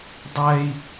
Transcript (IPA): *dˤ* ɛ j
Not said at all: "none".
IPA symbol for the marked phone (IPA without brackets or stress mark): dˤ